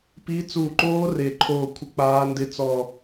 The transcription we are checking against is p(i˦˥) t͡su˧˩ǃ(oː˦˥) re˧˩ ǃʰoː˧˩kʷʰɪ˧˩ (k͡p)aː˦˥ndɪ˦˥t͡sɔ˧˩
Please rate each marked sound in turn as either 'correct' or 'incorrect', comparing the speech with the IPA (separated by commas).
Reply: correct, correct, correct